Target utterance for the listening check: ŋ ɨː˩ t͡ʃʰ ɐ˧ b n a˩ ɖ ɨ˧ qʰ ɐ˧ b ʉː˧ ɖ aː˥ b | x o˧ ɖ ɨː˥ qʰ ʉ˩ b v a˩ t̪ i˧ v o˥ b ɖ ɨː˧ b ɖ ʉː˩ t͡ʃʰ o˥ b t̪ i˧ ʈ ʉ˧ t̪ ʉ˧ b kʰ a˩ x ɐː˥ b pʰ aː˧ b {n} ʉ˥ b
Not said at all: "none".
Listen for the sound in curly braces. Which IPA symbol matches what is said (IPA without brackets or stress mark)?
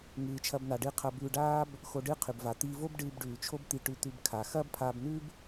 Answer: n